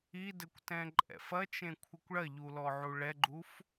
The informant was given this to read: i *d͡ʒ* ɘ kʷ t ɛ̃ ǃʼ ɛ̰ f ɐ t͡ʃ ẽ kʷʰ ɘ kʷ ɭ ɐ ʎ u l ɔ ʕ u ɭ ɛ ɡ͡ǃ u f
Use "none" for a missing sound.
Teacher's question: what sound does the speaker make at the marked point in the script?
d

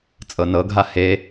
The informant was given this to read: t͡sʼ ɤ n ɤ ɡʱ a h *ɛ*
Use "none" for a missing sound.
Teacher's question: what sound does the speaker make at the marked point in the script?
e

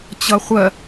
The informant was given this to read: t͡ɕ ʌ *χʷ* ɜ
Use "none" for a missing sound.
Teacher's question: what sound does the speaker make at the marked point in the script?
χʷ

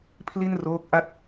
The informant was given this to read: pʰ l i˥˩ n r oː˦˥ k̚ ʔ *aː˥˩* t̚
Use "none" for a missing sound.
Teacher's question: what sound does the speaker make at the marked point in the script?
a˥˩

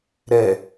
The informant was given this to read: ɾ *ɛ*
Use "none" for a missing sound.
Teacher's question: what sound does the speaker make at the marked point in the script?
ɛ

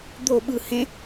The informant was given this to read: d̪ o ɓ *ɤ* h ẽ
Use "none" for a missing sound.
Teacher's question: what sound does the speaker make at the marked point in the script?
ɯ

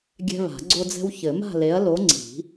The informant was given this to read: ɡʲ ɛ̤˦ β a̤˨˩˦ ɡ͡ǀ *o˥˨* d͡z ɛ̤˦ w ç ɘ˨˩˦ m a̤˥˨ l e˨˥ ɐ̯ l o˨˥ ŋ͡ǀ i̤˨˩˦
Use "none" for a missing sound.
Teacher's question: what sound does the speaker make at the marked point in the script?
o˦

